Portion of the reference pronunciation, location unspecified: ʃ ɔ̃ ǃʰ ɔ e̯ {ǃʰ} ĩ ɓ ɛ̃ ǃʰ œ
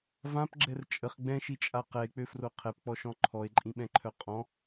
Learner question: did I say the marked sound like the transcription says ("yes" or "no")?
no